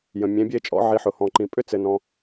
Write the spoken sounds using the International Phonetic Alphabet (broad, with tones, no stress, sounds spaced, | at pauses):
j ə̃˨ mʲ ẽ˨˦ bʲ e˥ t͡ʃʼ ɔ̰˨˦ ʕ i˨˦ ħ ʊ˨˩˦ h ɔ̃˨ ǃ ĩ˨ pʼ ʏ˥ t͡s ɘ˨ n ɔ̃˨